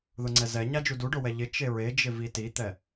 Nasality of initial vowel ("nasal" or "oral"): oral